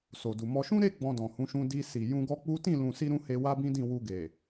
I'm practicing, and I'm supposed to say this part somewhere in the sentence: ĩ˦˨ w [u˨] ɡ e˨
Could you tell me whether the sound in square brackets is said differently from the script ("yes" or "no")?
yes